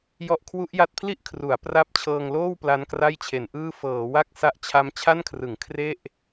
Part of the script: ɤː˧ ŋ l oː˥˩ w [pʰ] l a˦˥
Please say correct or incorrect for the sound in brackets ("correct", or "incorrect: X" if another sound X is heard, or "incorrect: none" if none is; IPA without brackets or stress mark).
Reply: incorrect: p